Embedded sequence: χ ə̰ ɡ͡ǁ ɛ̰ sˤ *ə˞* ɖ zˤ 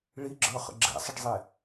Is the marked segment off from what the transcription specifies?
yes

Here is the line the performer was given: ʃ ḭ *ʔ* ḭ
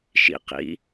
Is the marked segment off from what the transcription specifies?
yes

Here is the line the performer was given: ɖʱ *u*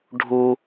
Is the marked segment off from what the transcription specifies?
no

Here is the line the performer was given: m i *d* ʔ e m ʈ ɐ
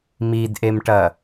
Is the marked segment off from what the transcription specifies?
no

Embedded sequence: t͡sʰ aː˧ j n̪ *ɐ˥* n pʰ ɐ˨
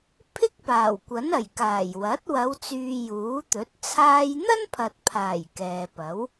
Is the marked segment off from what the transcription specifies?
no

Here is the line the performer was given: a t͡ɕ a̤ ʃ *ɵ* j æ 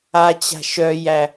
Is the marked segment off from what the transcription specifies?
yes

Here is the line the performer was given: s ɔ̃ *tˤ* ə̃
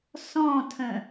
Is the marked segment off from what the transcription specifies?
yes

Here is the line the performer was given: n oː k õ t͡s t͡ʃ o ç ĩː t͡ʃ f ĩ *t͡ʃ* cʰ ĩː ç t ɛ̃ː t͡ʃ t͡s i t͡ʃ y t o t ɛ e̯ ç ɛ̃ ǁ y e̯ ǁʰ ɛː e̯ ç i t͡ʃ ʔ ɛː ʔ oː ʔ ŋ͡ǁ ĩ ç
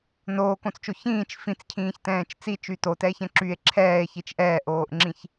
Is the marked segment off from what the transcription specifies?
yes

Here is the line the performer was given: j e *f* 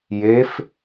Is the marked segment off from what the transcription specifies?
no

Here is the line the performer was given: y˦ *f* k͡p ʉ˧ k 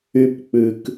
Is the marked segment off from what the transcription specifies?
yes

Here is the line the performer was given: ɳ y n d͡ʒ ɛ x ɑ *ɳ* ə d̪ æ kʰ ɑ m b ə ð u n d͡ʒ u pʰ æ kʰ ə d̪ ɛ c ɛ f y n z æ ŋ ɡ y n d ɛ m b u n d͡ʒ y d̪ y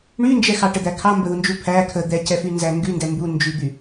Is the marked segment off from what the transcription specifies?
yes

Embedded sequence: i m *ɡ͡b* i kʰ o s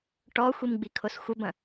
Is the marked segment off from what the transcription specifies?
no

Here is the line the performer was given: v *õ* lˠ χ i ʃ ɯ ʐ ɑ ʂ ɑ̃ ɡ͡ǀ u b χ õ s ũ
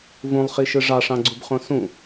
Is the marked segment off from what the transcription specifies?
yes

